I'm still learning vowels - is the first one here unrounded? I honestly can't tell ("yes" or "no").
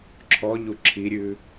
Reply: no